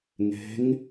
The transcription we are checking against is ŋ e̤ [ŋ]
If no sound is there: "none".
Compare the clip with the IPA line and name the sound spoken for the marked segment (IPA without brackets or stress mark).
ŋ